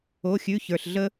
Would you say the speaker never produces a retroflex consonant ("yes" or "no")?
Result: yes